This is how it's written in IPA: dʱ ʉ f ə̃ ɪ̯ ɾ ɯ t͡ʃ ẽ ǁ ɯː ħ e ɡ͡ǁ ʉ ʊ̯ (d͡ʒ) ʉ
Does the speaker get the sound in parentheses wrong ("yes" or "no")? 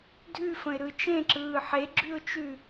yes